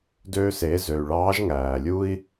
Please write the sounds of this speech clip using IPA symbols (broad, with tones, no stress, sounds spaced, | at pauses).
d ø˧ s e˩˧ z ø˩ y̯ ɭ ɑː˧˥ ʒ ŋ æː˩ lʲ u˥ i̯